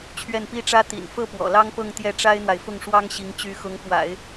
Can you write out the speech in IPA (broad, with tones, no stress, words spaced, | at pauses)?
t͡ɕʰɥɛ˥˩npi˥ʈ͡ʂä˥ t̪ḭ˨˩n fɤ˥˩ pwɔ̰˨˩lɑ˥ŋpɤ˥˧ŋ t̪jɛ˥˩ʈ͡ʂa˥ɪ̯n̪wa˨ɪ̯ fʊ˥˩ŋʂwɑ˥ŋɕi˧˥ŋ t͡ɕy˧˥xʊ˧˥ŋpwa̰˨˩˦ɪ̯